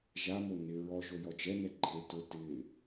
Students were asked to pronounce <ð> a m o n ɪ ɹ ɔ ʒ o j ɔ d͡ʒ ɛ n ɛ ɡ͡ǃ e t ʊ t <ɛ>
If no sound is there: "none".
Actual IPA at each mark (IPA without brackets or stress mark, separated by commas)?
ʒ, ɪ